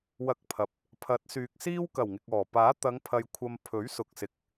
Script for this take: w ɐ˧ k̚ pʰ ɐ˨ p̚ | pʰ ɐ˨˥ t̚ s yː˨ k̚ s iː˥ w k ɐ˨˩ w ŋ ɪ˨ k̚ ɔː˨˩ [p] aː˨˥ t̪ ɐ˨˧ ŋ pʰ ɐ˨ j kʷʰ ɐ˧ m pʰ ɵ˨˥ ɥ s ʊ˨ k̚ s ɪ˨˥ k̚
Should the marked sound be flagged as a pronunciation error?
no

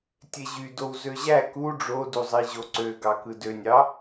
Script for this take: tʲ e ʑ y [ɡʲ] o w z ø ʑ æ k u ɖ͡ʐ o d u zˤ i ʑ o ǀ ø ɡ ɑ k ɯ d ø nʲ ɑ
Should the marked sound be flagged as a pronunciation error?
yes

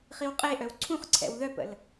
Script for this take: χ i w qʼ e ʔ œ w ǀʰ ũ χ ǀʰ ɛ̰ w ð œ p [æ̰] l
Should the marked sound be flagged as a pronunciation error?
yes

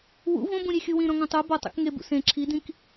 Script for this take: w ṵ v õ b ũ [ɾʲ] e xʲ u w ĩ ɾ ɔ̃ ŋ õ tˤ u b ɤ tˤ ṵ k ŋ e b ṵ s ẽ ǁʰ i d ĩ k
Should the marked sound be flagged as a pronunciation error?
no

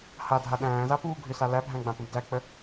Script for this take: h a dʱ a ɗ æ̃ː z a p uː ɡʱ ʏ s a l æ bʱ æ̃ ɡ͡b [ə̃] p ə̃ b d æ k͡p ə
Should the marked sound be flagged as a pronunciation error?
yes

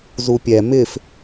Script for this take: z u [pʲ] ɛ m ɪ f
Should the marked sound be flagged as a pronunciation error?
no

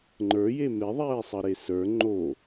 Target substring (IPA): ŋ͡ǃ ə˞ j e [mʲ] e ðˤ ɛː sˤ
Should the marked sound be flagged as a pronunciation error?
yes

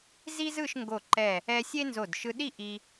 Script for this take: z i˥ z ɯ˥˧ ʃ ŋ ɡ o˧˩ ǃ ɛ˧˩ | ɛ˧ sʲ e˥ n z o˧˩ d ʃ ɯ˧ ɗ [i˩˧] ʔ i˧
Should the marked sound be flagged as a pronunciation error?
yes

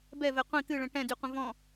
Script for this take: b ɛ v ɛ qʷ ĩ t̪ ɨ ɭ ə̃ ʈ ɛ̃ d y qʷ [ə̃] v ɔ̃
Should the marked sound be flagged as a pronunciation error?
no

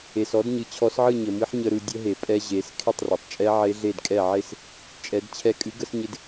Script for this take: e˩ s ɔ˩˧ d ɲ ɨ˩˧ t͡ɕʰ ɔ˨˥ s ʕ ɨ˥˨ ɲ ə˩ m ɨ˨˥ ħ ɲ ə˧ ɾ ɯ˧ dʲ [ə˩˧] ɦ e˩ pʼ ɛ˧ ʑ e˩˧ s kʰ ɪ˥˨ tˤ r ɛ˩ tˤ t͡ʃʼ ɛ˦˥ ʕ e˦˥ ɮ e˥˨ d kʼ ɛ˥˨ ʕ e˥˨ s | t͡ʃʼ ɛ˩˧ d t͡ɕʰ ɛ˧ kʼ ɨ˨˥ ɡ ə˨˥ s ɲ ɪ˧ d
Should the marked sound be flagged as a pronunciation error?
yes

